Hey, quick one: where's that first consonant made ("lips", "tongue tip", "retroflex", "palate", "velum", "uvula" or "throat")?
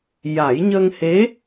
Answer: palate